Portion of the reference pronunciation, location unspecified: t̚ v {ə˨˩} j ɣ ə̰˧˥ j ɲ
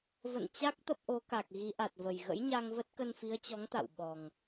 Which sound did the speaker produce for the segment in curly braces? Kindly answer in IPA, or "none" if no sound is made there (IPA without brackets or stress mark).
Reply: ə˨˩